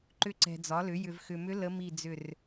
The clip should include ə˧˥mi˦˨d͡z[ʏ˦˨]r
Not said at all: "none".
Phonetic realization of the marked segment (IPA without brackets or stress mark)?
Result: ʏ˦˨